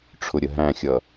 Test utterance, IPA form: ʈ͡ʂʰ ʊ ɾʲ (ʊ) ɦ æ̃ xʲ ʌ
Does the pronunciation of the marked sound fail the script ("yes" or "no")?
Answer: yes